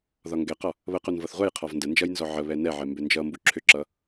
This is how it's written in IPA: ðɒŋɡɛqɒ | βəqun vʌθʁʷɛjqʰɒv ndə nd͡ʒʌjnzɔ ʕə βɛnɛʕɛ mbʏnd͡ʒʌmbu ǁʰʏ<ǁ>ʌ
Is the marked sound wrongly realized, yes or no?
no